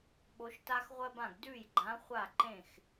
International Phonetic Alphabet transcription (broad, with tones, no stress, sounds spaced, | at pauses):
ɓ o˧˥ ʃ t a˥ x ʁʷ ɜ˥ b ã˥˨ ɡ d ʉ˥˨ j ɡ͡ǃ ã˧˥ χʷ a˥˨ ǃ ẽ˥˨ x